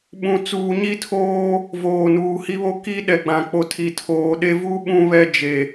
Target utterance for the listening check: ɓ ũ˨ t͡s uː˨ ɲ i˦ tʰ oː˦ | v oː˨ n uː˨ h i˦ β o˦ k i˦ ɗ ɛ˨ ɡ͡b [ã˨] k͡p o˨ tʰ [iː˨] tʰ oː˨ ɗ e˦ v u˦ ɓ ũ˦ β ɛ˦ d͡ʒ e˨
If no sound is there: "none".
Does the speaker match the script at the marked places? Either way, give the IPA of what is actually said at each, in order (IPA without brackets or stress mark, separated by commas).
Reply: ã˨, i˨